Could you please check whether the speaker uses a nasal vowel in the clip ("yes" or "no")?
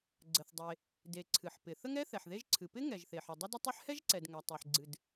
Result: no